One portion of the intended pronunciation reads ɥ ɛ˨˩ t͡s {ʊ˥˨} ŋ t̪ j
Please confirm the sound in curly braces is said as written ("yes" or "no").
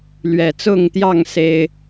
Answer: yes